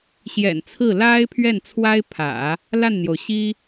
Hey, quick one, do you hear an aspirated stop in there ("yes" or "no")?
yes